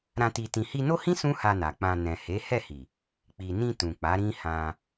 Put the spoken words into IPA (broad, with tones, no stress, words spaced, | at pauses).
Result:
ɾã˧ ti˧tĩ˧ hi˧no˦hĩ˦ sũ˦ha˧na˨ k͡pã˧ nɛ̃˨he˨˦hɛ˦˨hi˨ | k͡pi˨nĩ˧ tũ˨ k͡pa˨˦ɾĩ˦ hã˧